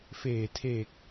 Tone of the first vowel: low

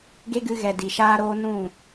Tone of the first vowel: high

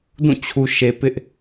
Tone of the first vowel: falling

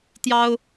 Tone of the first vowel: high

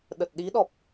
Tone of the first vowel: low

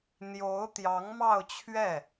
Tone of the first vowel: rising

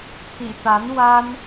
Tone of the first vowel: low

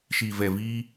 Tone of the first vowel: low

